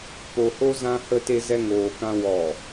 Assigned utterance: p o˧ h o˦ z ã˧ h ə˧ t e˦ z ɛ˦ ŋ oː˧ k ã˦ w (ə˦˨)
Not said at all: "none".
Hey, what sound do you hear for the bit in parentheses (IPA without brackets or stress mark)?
ɔ˦˨